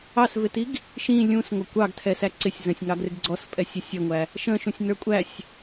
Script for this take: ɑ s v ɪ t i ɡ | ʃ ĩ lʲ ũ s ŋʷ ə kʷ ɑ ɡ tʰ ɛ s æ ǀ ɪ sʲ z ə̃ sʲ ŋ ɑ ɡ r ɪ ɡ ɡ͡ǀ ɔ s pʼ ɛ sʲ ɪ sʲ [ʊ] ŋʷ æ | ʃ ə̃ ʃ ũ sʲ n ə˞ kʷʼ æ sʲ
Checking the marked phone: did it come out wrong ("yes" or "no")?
yes